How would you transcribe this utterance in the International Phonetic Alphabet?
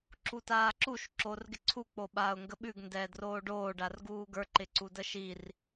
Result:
ǁ u t aː ǁ u ʃ ǁ o r ɡ ɪ ǀʰ u k͡p o ɓ aː ʊ̯ ŋ ɡ ə ɓ ʉ ɡ n d ɛː d r oː ɖ oː ɖ a r ɡ uː ɡ ə˞ ǃ ɪ ǀ u d ə ʃ i r

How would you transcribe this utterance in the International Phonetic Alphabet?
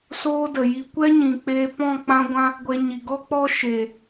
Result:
s oː˦ d ə˨ j i˧ kʷ ɛ˦ ɲ ĩ˨ k͡p e˧ p ɔ̃˦˨ k͡p ã˧ ɡʷ ã˧ | ɡʷ e˧ ɲ i˨ ɡ ɔ˦ k͡p ɔ˦ ʃ e˨

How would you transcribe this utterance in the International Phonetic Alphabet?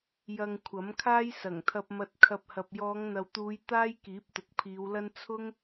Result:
j ɐ˧ ŋ kʷʰ ɐ˨˥ m kʰ aː˥ j s ɐ˨˩ ŋ t̪ʰ ɐ˧ p̚ m ɐ˧ t̚ kʰ ɐ˧ p̚ h ɐ˨ p̚ j ɔː˨˧ ŋ n̪ ɐ˨ w t̪ uː˨˧ j t̪ aː˥ j k iː˨˥ p̚ t̪ ʊ˨ k̚ pʰ iː˨˧ w l ɐ˥ n t͡sʰ ʊ˥ ŋ

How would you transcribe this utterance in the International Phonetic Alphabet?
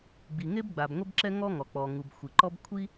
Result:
ɡ͡b i˩ ŋ e˥ b ɡ͡b a˩ b ŋʷ ɛ˥ b ǁ ɛ˥ ŋ ɔ˥ ŋ ɔ˩ k͡p ɔ˩ ŋ u˩ b xʷ i˩ ǃ ɔ˥ b kʷʰ i˥

